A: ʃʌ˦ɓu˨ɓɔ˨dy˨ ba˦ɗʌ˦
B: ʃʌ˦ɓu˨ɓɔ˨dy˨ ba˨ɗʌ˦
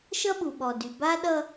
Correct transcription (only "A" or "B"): A